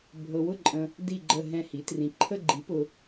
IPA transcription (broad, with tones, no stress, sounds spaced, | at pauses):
bʱ ɤ˨ w ʊ˦˨ ǃʼ ə̃˨ | d i˦˨ ɡ͡ǃ ə˦˨ ɦ ɛ̃˦˨ h i˩˥ t r ĩ˨ ǃʰ ə˦˨ ɡ͡ǃ i˩˥ p ʊ˨